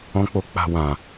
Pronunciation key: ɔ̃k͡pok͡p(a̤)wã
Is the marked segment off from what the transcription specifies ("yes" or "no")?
no